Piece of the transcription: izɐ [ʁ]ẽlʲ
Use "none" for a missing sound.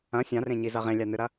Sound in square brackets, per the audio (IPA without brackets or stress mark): ʁ